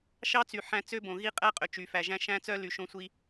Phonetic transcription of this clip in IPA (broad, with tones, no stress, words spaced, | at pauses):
ʃɑ˦t͡sy˨ ħæ̃˦ t͡sø˦bõ˨ɣi˦ qʼæ˦qʼø˨ t͡ʃy˨fæ˨ʒæ̃˦ ʃæ̃˦t͡sœ˦ ly˨ʃõ˦ sʷi˦